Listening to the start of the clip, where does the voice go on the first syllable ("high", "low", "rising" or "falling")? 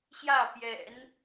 falling